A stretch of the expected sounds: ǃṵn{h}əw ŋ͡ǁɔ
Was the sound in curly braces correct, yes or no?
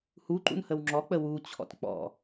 yes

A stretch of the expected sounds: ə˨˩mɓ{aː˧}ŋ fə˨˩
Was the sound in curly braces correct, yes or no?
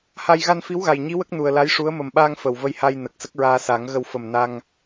yes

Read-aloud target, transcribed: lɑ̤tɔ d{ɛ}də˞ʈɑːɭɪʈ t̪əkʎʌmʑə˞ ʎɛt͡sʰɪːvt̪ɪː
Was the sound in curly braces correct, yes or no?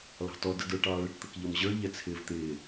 no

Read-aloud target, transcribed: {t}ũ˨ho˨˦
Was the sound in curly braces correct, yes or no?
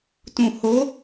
yes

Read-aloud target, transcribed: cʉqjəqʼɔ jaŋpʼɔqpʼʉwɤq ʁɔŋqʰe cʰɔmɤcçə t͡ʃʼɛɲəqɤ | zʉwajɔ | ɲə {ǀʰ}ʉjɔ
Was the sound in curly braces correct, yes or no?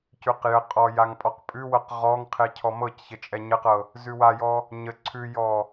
yes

